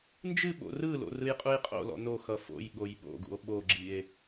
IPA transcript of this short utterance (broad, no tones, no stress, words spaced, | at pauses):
nd͡ʒɨɓo̰ rɯlo̰ rɯjqʼujqʼo̰lɔ̰ noxʌ fo̰j ɠojɓo̰ɡṵo̯ ɓoɡ͡ǁie̯